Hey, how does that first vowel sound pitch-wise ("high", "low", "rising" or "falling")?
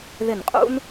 falling